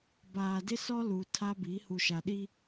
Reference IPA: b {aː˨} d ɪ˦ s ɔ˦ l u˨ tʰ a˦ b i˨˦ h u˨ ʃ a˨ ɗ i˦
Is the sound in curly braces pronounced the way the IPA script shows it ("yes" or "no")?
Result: yes